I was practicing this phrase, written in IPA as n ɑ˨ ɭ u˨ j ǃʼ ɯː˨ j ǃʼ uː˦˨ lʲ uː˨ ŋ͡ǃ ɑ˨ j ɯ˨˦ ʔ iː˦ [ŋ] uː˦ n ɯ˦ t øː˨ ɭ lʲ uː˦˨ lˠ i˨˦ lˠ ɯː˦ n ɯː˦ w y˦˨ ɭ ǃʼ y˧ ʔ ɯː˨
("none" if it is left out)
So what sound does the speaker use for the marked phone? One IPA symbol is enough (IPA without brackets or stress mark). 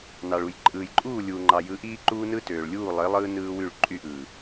ǃ